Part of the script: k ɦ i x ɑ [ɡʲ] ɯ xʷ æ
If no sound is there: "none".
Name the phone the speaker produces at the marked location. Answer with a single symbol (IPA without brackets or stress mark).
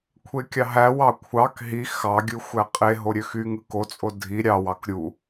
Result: ɡʲ